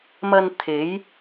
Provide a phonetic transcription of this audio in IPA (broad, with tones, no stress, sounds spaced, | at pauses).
m ɐ˧ n t̪ʰ e˨˧ j